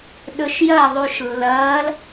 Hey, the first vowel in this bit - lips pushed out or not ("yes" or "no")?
yes